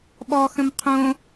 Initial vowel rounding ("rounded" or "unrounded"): rounded